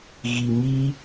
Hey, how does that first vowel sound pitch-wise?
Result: low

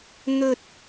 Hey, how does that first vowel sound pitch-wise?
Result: high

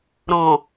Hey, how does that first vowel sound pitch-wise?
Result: low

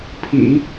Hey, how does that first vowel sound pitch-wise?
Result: low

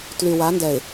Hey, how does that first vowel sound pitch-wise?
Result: low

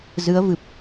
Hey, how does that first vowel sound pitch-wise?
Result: rising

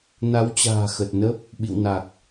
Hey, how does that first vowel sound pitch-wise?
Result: rising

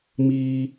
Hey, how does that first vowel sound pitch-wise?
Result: high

